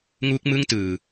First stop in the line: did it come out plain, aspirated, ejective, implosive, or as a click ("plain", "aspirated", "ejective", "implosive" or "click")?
plain